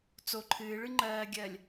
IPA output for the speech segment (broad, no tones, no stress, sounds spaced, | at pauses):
t͡s o ǃʰ ɨː ɭ ɨ ŋ͡ǃ ɜː ɡʲ ɜ lʲ